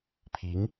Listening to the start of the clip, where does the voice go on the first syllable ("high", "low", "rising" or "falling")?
rising